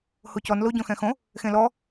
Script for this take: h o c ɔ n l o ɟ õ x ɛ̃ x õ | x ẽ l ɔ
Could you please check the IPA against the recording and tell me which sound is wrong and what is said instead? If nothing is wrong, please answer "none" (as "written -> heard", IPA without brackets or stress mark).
none